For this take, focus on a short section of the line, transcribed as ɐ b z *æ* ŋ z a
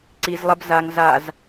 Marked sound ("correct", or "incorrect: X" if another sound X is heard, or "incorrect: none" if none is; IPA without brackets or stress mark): incorrect: a